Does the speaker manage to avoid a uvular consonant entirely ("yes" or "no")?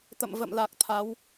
yes